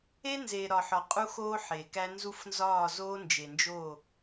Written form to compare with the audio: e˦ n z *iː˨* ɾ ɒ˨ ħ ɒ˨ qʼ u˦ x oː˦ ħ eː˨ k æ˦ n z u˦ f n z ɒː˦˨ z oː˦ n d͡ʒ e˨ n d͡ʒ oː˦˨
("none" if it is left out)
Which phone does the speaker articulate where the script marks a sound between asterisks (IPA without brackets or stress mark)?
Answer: eː˨